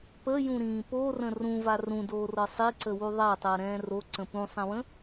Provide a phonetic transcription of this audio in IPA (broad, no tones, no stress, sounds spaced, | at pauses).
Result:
p ə j ũ ɾ ĩː p o r ə̃ r ũ v a r ũ d oː r ɤ sˤ i ǀ ə w u ðˤ a tˤ əː ɾ ɛ̃ː r o ǀ ə̃ p ũ sˤ ɛ̃ w ə̃